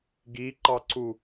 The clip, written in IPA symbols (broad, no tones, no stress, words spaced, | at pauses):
ɡiǃɑǀu